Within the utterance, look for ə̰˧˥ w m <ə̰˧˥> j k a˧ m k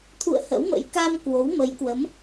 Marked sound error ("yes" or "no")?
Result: no